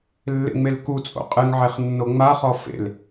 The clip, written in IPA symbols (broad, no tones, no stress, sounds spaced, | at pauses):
lː ḛ ŋ͡m e l k u t͡sʼ o̰ qʼ ɨ ŋ ʕ e χ nː o ŋ͡m a χ ɔ f ḛ l